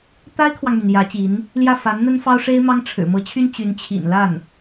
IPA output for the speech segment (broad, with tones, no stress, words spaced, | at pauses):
t̪a˥ɪ̯kʰwɑ˨ŋmy˩n jä˧˥t͡ɕi˧˥n | ljä˥˩ fa˧˥nn̪ə˥nfɑ˥ʊ̯ ʂe˥ɪ̯ mɑ˥ŋ ʈ͡ʂʰɻ̩˨˩mɤ˧˥t͡ɕʰy˥n t͡ɕy˧˥nt͡ɕʰḭ˨˩nla˥˩n